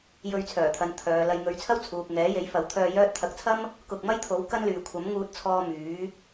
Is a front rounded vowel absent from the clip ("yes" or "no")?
no